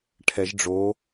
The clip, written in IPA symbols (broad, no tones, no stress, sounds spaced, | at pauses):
ʈʰ ɛ ʒ ɖ͡ʐ o